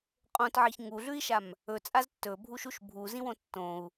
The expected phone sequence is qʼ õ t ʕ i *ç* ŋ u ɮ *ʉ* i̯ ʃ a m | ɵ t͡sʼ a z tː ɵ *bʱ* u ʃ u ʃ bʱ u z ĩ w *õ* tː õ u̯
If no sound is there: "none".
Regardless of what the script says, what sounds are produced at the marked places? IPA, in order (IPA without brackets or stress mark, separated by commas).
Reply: ç, ʉ, bʱ, õ